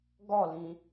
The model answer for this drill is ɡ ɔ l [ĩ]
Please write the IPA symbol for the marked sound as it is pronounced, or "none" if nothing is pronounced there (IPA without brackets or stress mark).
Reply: ĩ